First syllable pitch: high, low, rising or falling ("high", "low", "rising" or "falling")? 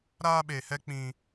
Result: high